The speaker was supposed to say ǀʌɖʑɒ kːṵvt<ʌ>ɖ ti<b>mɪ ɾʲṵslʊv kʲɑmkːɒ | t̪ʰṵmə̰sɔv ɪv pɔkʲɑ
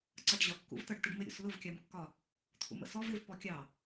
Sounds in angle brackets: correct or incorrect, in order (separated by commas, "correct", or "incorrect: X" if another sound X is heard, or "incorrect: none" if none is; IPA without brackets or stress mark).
correct, incorrect: ɖ